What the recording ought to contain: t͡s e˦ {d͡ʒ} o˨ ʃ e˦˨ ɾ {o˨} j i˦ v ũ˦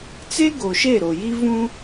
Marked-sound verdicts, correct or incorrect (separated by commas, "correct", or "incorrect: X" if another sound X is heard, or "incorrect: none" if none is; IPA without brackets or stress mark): incorrect: ɡ, correct